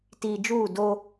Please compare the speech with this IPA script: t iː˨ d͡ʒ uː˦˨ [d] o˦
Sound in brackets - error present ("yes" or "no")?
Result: no